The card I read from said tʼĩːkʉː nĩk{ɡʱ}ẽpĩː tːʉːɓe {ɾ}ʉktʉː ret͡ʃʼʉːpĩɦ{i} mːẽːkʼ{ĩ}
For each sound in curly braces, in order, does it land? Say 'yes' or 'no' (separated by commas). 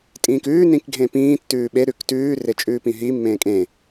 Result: yes, yes, yes, no